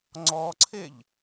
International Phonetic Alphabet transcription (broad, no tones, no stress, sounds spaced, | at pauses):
ŋ͡ǀ ɔ ǀʰ e ʎ